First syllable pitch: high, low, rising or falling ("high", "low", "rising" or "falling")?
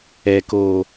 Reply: low